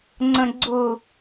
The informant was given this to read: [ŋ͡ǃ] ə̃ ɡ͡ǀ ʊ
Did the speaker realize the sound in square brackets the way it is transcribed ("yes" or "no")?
no